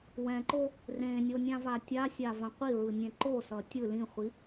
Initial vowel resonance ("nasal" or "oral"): nasal